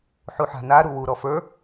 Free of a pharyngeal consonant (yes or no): no